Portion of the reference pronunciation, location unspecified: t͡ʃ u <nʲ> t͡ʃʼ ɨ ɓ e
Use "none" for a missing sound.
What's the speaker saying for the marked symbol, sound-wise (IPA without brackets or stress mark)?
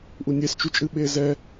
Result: none